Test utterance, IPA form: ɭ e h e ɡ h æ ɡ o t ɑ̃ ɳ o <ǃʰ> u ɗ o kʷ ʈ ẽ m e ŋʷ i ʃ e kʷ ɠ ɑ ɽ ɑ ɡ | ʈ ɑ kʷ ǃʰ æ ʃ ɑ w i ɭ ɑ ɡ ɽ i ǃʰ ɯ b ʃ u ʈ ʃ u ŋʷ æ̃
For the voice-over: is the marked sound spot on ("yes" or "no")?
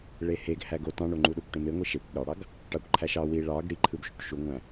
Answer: no